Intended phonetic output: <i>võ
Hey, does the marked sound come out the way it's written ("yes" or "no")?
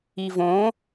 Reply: yes